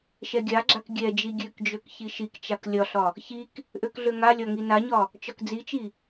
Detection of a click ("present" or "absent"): present